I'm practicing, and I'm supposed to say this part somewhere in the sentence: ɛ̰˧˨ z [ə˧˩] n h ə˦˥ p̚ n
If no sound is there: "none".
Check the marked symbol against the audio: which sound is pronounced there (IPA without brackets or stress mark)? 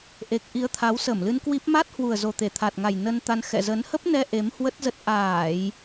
ə˨˦